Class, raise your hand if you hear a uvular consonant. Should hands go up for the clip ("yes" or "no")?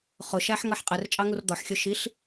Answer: yes